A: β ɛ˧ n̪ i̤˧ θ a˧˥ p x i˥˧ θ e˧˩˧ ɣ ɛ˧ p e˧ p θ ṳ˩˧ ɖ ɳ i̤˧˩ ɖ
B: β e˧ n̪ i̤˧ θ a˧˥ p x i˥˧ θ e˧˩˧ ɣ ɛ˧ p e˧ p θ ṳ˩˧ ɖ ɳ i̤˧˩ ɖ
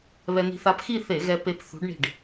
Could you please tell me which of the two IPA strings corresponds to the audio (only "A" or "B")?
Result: A